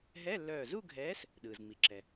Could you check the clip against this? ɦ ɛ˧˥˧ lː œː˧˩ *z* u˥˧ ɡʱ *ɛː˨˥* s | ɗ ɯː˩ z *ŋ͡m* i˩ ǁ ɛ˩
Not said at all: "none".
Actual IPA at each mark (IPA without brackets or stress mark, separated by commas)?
z, ɛː˨˥, ŋ͡m